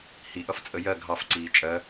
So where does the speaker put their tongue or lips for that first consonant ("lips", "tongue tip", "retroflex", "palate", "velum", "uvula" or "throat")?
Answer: throat